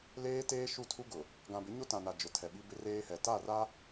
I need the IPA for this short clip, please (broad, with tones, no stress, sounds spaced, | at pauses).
l eː˦ t eː˦ ʃ u˦˨ tʰ u˦ ɡ ʊ˨ | ɡ ã˨ b ɪ˨˦ ɲ o˦ t ã˨ n a˨ d͡ʒ ʊ˨ tʰ ɛ˨ ɓ i˦ b ɪ˦ r eː˦ h ɛ˨ t a˦˨ r a˦